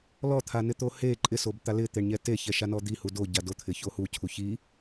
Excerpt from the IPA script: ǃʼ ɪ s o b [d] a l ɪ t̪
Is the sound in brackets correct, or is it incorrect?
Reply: incorrect